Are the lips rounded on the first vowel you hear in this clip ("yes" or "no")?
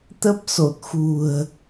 no